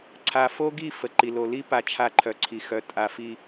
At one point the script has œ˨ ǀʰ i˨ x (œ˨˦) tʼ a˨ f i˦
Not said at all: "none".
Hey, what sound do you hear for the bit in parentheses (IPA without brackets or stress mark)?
œ˨˦